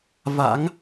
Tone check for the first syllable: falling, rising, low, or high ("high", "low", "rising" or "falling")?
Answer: rising